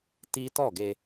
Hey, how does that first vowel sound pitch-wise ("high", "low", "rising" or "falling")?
high